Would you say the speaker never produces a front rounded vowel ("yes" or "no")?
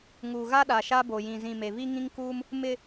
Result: yes